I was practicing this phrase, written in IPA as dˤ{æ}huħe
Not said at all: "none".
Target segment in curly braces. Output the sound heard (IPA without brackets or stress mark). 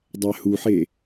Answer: æ